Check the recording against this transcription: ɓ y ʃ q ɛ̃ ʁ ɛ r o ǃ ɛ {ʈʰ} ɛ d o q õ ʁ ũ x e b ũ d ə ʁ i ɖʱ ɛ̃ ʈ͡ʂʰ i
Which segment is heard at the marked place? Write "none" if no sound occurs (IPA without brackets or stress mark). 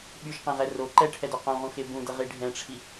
ʈʰ